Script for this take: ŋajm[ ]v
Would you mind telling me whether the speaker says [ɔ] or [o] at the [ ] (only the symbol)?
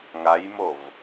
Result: o